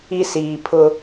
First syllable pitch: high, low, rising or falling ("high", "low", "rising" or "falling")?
high